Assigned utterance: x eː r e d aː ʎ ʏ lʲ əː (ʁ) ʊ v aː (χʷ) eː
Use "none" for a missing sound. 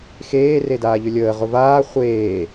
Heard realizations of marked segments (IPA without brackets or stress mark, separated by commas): ʁ, χʷ